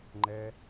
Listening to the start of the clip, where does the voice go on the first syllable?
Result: high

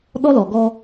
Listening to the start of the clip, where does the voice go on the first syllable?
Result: high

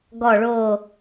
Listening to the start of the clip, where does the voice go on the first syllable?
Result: falling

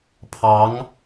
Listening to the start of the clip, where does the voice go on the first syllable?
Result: rising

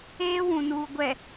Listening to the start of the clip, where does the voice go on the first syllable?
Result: high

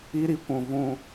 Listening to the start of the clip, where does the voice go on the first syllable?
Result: high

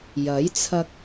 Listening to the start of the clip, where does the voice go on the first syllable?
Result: rising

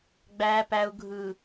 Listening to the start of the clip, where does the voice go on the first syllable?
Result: low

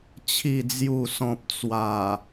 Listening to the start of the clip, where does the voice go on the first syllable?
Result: low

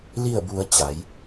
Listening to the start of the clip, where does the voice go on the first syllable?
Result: falling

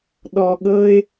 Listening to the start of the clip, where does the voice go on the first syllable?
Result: low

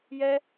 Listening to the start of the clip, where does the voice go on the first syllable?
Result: high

